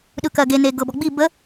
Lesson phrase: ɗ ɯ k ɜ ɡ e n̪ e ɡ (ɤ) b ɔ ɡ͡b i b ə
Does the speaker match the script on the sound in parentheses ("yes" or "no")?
yes